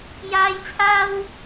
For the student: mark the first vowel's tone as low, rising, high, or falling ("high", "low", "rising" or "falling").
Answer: high